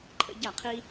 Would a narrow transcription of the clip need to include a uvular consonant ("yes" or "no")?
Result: yes